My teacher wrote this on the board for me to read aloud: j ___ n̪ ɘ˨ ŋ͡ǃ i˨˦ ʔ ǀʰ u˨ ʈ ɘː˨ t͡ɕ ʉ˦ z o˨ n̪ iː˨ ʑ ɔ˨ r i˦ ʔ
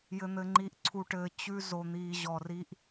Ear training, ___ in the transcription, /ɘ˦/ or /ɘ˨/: ɘ˨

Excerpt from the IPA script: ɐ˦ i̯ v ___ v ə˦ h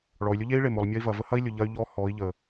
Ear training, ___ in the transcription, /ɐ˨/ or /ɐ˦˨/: ɐ˨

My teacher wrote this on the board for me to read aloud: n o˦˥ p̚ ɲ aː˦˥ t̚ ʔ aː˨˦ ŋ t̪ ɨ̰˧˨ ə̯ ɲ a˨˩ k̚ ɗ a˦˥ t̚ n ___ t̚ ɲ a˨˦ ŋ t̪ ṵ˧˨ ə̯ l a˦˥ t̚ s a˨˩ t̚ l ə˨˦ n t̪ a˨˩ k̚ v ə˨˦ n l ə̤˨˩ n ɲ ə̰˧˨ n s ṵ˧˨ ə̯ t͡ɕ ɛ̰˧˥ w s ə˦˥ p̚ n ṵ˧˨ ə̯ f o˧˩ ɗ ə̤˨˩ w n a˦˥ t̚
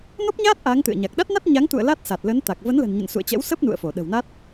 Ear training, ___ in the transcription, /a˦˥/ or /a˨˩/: a˦˥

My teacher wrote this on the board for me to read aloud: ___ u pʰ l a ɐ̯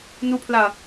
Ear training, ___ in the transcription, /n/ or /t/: n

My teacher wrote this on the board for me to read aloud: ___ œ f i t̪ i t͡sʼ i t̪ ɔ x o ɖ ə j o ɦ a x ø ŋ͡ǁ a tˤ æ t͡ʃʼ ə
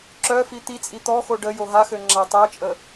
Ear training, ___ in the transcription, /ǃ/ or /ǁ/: ǁ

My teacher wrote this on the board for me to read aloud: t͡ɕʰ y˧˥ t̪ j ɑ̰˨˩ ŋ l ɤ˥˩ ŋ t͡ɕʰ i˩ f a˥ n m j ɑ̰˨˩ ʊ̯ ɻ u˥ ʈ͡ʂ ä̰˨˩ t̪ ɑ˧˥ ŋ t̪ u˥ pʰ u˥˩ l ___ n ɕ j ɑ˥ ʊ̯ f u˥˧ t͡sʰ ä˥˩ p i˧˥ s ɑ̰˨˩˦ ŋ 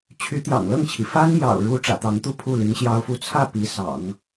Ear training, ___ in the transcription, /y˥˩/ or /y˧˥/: y˧˥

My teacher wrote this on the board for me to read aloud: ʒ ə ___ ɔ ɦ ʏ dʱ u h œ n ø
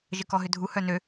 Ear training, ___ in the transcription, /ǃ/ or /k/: k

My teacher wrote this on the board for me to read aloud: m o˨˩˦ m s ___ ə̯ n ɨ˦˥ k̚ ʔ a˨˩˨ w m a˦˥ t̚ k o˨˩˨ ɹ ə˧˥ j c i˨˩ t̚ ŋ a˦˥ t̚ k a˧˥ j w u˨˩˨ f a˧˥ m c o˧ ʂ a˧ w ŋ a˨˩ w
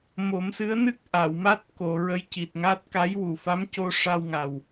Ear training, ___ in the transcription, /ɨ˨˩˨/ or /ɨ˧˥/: ɨ˧˥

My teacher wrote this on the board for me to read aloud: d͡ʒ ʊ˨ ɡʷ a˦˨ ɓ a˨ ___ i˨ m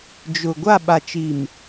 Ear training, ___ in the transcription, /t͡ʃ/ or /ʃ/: t͡ʃ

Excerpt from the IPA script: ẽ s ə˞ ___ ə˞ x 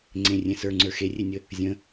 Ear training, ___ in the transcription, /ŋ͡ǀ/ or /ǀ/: ŋ͡ǀ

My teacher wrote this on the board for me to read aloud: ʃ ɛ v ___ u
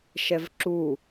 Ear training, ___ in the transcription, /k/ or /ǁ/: ǁ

